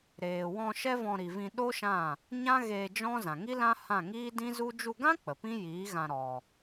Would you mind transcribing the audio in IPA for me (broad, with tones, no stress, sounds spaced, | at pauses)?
ɾ eː˨ w ɔ̃˧ ʃ ɛ˦ v ɔ̃˧ ɾ i˨ v ĩ˧ ɗ o˦ ʃ ã˦˨ | ɲ ã˦ ɣ eː˧ d͡ʒ ɔ̃˦ z ã˨ ŋ i˦ l ã˦ h ã˦˨ ŋ iː˦ d ĩ˦ z u˦ d͡ʒ u˧ ɡ ã˦ k͡p ə˨ p ĩ˦ j iː˨˦ ɣ ã˧ ɾ ɔ˧